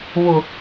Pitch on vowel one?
low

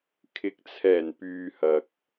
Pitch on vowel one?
rising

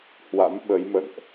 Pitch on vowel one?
rising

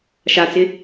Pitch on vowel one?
low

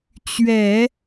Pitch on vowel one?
low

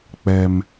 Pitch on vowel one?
high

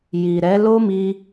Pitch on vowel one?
low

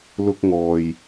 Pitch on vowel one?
high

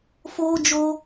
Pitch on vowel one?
high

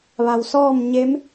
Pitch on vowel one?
low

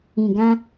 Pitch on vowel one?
low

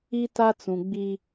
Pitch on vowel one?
high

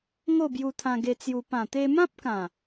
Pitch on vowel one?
falling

